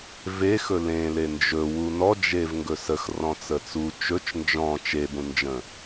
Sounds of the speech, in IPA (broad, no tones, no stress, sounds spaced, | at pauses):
v e x ɵ l ẽ l e n d͡ʒ ɵ w u n ɔ d͡ʒ e v ŋ ɡ ɵ s ə x r ɔ̃ t͡s ə t͡s u t͡ʃ ɵ t͡ʃ n d͡ʒ ɔ̃ t͡ʃ e b ũ n d͡ʒ ə̃